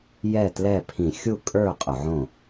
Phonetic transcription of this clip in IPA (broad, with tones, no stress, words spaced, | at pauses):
jɛ˥˩tlɛ˥˩pʰĩ˧˩˧ xʲu˥˩kʼə˞˥˩ qʼʊ˧˩˧ʕõ˥˩